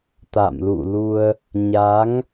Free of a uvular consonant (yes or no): yes